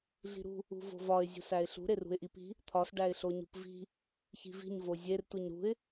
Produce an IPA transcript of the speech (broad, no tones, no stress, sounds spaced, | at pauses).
ɮ i̤ ɾ ṳ | ṳ v o̤ v ɒ ɪ̯ zʲ ṳ s æ ɪ̯ ɬ ṳ ɾ e r ṳ ɪ̯ ʔ i p i̤ | t̪ʰ ɒ s ɖ æ ɪ̯ ɬ o ɲ ṳ p v i̤ | ç i̤ v i̤ ɲ v o zʲ e r t u ɲ ɾ ṳ ɪ̯